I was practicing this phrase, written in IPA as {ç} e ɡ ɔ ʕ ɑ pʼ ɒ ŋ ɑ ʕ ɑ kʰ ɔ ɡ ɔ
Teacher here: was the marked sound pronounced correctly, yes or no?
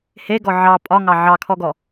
no